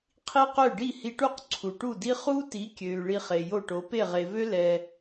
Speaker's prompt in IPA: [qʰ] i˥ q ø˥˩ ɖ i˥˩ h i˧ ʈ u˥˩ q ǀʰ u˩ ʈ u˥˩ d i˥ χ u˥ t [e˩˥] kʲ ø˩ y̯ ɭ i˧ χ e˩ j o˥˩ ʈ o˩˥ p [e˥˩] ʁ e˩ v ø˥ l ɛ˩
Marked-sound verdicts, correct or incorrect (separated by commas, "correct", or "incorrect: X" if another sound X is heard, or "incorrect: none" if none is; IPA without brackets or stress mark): correct, incorrect: i˩˥, correct